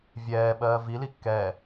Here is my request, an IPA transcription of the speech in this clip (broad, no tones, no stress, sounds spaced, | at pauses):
vʲ ɛː ɓ ɜː v i l i kː ɛː